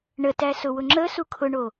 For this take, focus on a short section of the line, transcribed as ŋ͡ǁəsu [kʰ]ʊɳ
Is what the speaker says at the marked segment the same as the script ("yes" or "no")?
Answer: yes